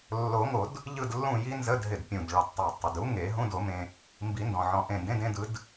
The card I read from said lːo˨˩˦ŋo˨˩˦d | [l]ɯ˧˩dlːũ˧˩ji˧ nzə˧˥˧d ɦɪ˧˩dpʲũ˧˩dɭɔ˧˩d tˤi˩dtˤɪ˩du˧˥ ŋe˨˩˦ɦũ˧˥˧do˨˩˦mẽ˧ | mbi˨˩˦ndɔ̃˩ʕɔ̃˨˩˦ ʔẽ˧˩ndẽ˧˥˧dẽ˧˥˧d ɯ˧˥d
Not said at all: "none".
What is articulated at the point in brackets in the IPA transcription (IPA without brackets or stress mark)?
ʎ